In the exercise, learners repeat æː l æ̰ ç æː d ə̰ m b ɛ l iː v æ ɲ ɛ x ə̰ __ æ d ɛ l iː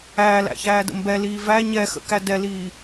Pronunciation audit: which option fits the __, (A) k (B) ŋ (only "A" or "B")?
A